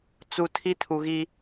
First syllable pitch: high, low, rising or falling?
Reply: low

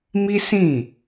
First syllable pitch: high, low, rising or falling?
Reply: high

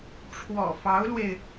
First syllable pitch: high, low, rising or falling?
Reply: low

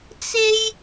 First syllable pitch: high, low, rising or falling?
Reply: high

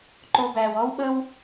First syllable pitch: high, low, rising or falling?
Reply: low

